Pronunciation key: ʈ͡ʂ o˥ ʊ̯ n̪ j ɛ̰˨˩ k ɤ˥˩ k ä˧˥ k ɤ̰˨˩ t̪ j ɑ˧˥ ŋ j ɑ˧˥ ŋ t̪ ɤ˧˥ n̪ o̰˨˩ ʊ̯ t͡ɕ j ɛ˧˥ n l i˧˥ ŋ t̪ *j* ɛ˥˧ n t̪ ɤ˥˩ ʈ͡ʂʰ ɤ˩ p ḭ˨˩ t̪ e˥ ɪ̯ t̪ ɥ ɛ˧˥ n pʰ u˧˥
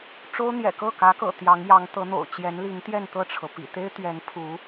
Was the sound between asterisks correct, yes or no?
yes